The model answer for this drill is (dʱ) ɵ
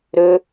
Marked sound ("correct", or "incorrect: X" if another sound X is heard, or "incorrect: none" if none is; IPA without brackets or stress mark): incorrect: ɾ